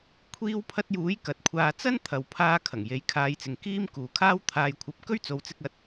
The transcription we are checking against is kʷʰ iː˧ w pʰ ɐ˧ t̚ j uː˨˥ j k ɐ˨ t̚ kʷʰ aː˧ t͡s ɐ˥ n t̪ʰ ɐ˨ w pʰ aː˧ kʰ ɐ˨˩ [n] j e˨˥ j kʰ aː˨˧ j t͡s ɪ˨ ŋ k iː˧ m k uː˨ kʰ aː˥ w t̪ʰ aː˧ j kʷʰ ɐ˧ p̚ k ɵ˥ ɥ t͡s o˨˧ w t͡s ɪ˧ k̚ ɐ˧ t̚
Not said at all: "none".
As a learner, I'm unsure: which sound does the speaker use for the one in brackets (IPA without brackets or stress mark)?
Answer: ŋ